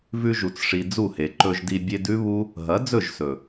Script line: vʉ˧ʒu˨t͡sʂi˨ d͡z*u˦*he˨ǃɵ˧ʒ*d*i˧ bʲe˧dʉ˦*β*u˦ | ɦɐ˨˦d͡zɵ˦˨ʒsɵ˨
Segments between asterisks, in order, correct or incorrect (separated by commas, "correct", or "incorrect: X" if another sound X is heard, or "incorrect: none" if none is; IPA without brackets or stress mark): incorrect: u˦˨, correct, correct